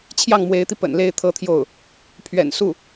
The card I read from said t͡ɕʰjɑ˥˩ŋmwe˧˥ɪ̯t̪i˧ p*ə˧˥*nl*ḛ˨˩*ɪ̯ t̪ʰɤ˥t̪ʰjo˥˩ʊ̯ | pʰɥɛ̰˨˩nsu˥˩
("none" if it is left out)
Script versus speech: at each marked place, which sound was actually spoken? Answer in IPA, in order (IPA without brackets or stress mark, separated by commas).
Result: ə̰˨˩, e˥˩